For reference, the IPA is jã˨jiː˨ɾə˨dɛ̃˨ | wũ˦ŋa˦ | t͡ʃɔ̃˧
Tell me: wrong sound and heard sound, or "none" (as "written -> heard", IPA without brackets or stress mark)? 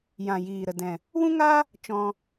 none